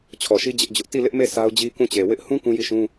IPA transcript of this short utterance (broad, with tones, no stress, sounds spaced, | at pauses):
t͡ɕʰ ɔ˨ ʃ i˦ d͡ʑ ɪ˦ ʔ d͡ʑ ʊ˦ ʔ t i˦˨ l ɪ˦ ʔ m e˦˨ s a˦ ʊ̯ d͡ʑ i˦ k ũ˦˨ t͡ɕ e˨ w ɪ˦ ʔ h ũ˦ k ũ˦ j i˦˨ ʃ ũ˦